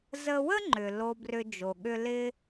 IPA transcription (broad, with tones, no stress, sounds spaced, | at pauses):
z ə˧ w ə˥ ŋ͡ǃ ʏ˩ l o˧ b r ʏ˧ d͡ʒ o˩ ɠ ʏ˧ l ɪ˥